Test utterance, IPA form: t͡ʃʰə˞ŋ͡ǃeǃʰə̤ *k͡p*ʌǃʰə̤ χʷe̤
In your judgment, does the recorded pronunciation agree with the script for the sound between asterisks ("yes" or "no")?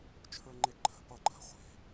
no